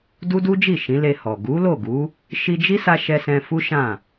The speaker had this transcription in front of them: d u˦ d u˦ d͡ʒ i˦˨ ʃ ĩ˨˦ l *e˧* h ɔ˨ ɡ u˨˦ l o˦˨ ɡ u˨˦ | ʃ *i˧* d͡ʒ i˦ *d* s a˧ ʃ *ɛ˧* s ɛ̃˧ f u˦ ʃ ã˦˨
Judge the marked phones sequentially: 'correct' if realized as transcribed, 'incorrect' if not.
correct, correct, incorrect, correct

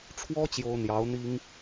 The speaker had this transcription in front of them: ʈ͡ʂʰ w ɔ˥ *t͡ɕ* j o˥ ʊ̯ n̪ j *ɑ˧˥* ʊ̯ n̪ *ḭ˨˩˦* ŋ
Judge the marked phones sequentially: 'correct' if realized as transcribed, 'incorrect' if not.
correct, correct, incorrect

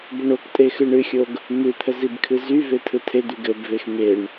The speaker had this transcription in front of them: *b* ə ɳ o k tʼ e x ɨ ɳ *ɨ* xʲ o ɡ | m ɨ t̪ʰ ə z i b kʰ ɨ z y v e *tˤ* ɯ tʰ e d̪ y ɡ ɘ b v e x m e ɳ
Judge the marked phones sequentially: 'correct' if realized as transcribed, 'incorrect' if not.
correct, correct, incorrect

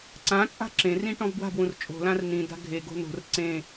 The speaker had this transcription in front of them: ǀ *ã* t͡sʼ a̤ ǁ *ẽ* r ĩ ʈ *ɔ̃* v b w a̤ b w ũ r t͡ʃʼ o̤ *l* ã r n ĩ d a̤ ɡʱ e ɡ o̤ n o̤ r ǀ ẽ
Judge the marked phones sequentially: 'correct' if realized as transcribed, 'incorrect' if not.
correct, correct, correct, correct

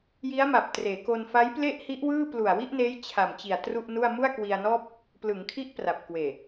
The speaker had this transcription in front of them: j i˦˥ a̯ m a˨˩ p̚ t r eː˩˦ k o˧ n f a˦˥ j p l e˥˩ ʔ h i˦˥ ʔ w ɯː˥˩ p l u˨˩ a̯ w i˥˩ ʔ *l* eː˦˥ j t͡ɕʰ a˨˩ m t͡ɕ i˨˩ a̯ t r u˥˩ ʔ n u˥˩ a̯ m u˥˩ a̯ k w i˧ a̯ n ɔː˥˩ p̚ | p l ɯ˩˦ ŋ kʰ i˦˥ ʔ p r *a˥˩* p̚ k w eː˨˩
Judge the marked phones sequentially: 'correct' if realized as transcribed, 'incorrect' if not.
incorrect, incorrect

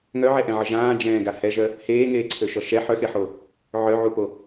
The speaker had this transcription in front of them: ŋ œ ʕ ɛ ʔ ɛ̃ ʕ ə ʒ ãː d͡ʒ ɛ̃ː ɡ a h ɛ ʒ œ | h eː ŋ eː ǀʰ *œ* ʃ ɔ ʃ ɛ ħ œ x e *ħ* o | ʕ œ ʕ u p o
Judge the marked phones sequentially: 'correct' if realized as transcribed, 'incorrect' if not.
incorrect, correct

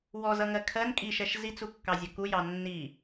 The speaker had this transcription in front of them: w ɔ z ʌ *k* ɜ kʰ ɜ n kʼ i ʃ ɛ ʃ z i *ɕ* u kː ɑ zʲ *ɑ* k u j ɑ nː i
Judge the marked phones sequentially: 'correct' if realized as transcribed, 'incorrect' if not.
incorrect, incorrect, incorrect

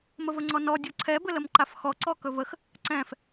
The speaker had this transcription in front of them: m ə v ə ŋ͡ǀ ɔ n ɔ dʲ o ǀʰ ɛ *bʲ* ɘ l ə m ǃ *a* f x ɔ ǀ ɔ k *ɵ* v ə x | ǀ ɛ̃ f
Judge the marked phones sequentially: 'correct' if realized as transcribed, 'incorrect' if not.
incorrect, correct, correct

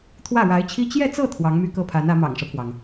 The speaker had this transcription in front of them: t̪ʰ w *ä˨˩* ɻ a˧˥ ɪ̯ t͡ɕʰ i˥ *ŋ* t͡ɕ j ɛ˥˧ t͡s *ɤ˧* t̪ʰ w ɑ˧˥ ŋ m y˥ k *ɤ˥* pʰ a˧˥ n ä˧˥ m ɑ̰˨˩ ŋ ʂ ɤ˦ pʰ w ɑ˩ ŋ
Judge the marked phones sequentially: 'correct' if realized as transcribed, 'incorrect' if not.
incorrect, incorrect, incorrect, correct

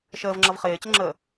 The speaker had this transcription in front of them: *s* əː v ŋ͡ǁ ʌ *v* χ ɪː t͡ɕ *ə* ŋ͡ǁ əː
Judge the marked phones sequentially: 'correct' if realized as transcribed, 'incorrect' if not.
incorrect, correct, correct

